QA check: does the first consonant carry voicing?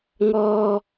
yes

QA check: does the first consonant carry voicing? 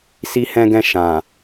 no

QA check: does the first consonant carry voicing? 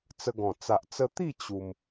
no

